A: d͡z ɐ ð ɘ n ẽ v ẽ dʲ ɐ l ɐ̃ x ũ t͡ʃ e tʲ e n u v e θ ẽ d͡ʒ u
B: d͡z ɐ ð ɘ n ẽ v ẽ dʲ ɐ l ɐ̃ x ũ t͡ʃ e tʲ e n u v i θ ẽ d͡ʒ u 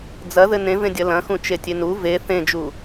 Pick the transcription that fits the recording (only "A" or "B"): A